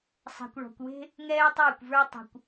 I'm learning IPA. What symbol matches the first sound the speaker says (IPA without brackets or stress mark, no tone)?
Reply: sˤ